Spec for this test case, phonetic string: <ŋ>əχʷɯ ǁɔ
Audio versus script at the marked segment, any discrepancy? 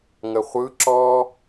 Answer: no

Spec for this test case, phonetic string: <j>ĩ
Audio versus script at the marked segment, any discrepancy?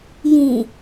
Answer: no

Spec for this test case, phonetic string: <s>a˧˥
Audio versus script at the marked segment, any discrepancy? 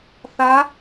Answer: yes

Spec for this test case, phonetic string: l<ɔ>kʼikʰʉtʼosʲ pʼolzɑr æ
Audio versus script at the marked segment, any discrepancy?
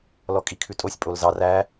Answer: no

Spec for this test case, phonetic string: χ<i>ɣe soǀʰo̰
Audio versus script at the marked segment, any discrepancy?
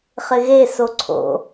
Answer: yes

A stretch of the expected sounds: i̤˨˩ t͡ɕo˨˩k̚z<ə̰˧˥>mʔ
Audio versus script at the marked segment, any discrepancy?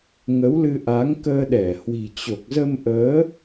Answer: yes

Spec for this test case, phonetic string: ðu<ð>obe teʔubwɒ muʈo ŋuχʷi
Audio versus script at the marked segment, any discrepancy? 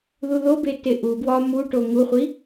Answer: no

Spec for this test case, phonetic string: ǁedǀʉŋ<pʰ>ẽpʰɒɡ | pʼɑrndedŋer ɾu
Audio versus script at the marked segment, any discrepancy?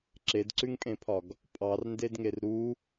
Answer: yes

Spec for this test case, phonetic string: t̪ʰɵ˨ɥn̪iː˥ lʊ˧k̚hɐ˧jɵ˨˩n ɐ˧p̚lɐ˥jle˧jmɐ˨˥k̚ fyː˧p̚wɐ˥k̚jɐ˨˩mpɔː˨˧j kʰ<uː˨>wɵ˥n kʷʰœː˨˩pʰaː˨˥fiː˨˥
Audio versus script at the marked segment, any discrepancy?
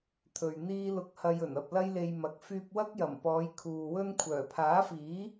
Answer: no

